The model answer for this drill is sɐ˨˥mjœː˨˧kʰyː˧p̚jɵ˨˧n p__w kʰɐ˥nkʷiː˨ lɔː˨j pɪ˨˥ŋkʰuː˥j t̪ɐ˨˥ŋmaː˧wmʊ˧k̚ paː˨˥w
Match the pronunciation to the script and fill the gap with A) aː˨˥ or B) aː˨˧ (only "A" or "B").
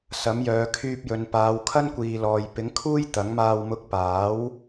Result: B